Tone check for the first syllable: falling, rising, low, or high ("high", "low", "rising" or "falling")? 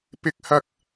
low